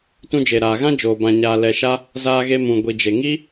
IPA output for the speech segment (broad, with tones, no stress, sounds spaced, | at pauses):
t ũ˧ d͡ʒ e˨ ɾ aː˨ ɣ ã˦ d͡ʒ oː˨ b ã˨ ɲ aː˨ l ɛ˨ ʃ a˦ | z aː˧ ɣ e˧ m ũ˨ ɡʷ i˨ d͡ʒ e˨ ŋ i˦